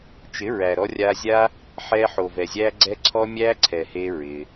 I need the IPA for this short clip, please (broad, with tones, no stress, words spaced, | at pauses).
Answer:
t͡ʃɪ˨˦ɹæ˨ ɾɔ˧rʲa˧zʲa˦ | ħɛ˧ħo˨vɛ˨ zʲæ˦ɡ͡ǀɛ˦ ǀʰɔ˧ mʲæ˦ǀʰɛ˨ he˦ɹɪ˧